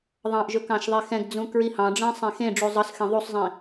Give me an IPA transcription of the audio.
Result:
ðˤɑ̃ʔʒɵ kɑ̃ʃðˤexɛ̃ɡd͡zũ kɹihɑ̃ɖ͡ʐɛ̃ sˤẽxẽɖ͡ʐu zˤɤsxẽ ðˤusˤzˤĩ

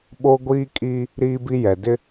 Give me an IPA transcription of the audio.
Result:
ɓo˦ɡʷiː˦kʼi˦ | ɾiː˦bi˦jɛ˨ dɪ˦

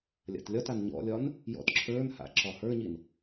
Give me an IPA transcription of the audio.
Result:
lʲa̰tlʲɒtan ɲɔ̰lʲɒn | jɔ̰tǁʰə˞nha̰ ǁɒhə˞ɲin

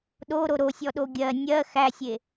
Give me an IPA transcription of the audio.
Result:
ɗoɾo ɾosʲɔɗo ɡʲɜ nʲɜ xæsʲe

